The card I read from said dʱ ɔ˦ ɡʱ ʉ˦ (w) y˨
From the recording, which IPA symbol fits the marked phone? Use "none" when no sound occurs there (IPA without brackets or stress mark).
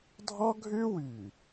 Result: w